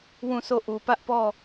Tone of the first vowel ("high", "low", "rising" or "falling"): falling